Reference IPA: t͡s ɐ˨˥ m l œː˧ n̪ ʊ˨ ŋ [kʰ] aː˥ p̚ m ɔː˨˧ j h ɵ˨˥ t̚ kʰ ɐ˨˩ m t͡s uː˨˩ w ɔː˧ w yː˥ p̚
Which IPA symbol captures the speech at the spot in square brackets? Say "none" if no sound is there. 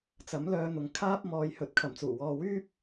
kʰ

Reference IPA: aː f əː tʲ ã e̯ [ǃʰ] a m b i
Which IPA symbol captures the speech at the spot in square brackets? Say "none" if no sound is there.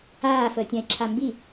ǁʰ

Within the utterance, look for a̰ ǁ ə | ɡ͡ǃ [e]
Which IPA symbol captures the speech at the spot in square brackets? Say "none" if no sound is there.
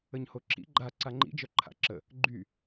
y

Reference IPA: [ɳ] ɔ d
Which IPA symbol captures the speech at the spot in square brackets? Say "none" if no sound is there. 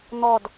n̪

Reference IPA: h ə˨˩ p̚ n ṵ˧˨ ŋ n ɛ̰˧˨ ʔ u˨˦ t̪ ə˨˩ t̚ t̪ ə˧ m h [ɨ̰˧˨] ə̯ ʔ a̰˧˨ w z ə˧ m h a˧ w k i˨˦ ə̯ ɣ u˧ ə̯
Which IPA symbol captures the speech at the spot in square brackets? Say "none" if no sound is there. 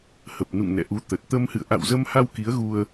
ɨ̰˧˨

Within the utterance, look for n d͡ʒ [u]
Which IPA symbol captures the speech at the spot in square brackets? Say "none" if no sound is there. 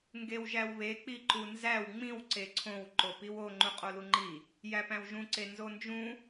ũ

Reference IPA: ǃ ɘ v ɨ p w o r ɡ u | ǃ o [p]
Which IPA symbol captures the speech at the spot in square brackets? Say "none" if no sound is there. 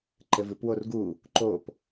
p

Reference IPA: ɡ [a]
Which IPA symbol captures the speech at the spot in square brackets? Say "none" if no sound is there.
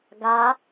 a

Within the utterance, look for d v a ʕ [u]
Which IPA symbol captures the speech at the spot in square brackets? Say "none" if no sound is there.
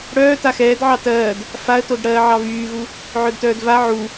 u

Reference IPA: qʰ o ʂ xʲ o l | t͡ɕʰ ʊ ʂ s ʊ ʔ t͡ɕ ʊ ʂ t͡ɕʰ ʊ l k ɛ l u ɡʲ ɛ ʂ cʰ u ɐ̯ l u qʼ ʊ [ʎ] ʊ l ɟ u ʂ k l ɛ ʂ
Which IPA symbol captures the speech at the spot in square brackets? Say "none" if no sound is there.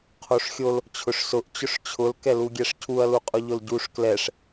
ʎ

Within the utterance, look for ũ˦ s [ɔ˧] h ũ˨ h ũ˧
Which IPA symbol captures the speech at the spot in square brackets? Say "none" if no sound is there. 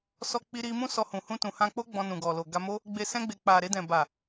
ɔ˧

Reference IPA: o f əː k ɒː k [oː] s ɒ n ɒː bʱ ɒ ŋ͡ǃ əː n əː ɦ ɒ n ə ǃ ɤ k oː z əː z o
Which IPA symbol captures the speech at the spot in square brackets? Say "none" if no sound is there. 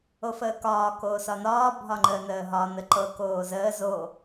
oː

